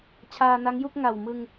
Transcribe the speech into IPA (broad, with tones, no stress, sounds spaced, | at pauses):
t͡ɕʰ aː˧ n a˦˥ ŋ j u˥˩ k̚ ŋ a˨˩ w m ɯ˧ ŋ